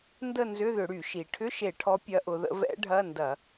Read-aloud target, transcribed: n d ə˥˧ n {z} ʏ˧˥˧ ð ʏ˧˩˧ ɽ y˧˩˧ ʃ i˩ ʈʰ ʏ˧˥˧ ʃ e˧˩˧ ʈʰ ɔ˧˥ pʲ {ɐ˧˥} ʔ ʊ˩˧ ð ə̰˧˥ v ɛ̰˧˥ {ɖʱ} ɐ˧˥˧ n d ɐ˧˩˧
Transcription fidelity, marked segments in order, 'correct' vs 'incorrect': correct, correct, correct

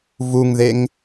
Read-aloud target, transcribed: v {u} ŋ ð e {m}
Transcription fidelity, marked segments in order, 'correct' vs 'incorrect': correct, incorrect: ŋ

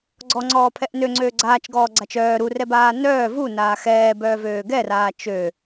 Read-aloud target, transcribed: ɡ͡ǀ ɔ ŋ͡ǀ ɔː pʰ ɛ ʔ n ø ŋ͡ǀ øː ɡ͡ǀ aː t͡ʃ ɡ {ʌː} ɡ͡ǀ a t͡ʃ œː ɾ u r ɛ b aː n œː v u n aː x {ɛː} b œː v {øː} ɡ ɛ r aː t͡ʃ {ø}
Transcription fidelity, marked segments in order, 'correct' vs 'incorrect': incorrect: ɔː, correct, correct, correct

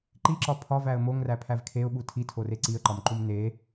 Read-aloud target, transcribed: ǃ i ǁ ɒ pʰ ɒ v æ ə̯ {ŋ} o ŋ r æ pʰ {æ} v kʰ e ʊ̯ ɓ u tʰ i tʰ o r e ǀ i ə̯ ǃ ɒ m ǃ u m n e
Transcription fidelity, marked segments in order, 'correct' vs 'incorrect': incorrect: m, correct

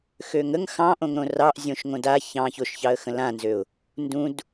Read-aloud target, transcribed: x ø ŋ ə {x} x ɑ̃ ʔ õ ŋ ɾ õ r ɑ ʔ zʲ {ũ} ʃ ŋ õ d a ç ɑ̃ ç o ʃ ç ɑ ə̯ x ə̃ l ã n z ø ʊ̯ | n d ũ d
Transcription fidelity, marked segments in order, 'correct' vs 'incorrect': incorrect: ŋ, incorrect: õ

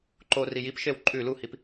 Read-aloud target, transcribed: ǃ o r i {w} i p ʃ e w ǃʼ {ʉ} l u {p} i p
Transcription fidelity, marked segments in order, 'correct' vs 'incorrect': incorrect: j, correct, incorrect: h

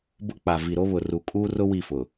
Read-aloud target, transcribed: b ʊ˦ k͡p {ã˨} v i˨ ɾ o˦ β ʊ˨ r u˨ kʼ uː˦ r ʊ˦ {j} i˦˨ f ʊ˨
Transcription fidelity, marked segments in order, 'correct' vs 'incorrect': incorrect: a˨, incorrect: w

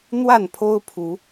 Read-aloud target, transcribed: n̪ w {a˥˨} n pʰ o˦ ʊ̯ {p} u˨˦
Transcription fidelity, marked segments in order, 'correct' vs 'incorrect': correct, incorrect: pʰ

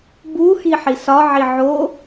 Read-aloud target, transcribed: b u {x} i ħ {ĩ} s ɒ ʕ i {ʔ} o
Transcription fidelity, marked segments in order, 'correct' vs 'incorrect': correct, incorrect: i, incorrect: ʕ

